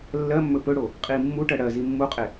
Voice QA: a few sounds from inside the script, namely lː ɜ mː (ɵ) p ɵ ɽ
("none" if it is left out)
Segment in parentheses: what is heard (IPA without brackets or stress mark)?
ɵ